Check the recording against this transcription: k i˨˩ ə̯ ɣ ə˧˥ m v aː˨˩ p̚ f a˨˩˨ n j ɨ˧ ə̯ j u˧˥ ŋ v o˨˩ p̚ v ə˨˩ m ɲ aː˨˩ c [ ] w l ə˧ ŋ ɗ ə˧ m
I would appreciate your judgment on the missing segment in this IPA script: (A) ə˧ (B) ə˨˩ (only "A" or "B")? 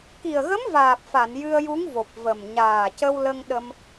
A